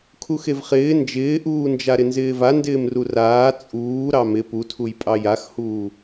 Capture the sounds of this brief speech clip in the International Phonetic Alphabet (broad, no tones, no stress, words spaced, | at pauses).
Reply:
kʰuxevχɪː nd͡ʒɪːʔuːnd͡ʒa ɾɪnzɪːva ndɪːmruraː t͡sʼuː ɾɑmɪ putʰuj pʼɑjaxhuː